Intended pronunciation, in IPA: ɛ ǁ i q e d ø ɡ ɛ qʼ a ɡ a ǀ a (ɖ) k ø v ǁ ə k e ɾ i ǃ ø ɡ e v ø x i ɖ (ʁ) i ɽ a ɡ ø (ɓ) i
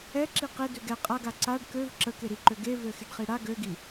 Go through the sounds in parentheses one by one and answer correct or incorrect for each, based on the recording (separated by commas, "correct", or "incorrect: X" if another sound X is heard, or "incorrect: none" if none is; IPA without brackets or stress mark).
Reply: correct, incorrect: χ, incorrect: ɡ